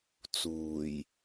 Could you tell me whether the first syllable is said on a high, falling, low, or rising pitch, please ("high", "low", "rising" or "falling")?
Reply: low